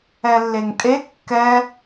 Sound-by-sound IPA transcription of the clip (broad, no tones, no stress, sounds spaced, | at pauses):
ɛ lː e ŋ tʼ e kː ɛ